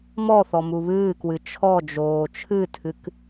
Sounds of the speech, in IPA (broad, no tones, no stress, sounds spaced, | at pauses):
m ɔ θ ɔ m u β ɨː k w ɨ t͡ʃʰ ɔ d͡ʒ oː t͡ʃʰ ɨ tʰ ɨ k